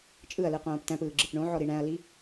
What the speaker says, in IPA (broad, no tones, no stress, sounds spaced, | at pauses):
t͡ʃʼ ɯ ɐ̯ l ɯ q õː p t æ̃ p ɯː ɡ͡ǁ ɯ p ɳ õ ʕ ɔ ɾ i ɳ æ̃ ɐ̯ l i